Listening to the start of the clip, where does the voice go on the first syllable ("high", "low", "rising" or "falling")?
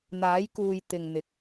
rising